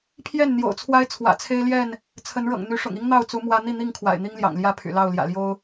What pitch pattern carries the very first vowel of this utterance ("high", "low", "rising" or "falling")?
falling